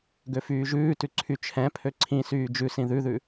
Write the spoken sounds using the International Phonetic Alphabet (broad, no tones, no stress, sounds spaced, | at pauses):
ɡ ø f yː ʒ ʉː t ʉ ǀʰ y t͡ʃʰ ɛ̃ pʰ ø ǀʰ ĩ s yː d͡ʒ ʉ s ĩ ð ʉ ð ʉ